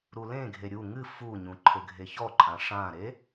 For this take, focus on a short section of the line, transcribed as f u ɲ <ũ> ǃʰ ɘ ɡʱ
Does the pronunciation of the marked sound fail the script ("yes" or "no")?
no